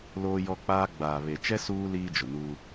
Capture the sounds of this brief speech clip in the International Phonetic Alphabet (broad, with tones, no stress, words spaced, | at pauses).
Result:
loː˦jɔ˦k͡paː˦ ɡ͡baː˨βe˨t͡ʃɛ˦ suː˦ liː˦d͡ʒʊ˨nuː˦